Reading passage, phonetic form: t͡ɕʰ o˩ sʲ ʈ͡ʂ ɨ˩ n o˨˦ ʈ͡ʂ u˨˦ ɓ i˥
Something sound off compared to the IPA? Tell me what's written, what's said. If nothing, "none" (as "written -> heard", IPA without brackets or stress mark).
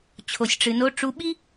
none